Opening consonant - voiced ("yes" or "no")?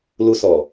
yes